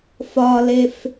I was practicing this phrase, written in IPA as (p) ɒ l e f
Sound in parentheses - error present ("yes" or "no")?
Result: yes